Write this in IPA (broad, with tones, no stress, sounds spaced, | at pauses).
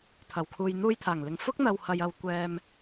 t̪ʰ ɐ˨˩ w kʰ uː˨ j n̪ uː˧ j t̪ʰ aː˨˩ ŋ l ɪ˨ ŋ f ʊ˥ k̚ n̪ ɐ˨ w h ɐ˨ j ɐ˨ w kʷ ɛː˧ m